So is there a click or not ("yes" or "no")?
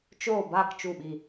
no